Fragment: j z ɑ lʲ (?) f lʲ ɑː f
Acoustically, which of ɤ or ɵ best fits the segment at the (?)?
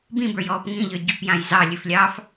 ɵ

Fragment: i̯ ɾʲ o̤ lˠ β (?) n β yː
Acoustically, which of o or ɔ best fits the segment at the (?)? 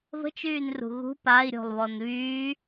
ɔ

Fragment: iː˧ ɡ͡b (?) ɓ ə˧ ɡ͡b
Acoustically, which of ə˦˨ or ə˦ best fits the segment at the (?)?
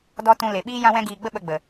ə˦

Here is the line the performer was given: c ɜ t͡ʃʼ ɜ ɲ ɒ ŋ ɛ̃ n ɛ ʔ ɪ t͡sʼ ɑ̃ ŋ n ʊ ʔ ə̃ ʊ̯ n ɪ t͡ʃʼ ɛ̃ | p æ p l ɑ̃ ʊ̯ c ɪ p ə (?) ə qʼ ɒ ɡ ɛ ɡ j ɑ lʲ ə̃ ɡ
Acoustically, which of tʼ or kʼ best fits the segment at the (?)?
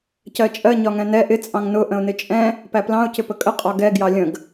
kʼ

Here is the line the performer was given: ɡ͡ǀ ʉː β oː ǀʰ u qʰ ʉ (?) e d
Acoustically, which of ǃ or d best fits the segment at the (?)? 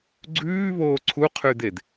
d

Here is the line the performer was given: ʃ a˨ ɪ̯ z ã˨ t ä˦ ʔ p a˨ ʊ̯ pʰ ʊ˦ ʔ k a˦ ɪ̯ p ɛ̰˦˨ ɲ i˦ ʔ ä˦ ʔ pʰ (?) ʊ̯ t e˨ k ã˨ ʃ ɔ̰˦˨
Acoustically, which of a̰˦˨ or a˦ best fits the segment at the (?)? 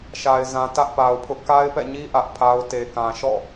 a˦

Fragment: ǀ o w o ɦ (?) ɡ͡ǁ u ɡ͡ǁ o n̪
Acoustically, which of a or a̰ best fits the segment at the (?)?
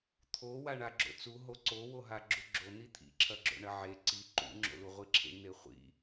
a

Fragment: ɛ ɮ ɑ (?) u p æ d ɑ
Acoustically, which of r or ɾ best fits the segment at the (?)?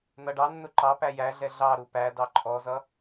ɾ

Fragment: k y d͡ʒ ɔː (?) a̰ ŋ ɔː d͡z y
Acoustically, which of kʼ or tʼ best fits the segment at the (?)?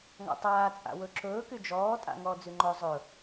tʼ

